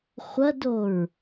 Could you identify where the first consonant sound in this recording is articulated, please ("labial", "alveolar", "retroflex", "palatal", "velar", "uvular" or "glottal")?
uvular